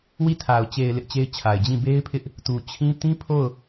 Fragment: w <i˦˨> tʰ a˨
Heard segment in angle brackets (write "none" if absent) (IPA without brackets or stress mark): i˦˨